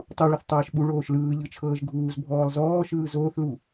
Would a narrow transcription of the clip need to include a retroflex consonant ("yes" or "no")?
yes